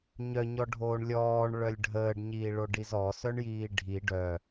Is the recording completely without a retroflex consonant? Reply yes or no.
no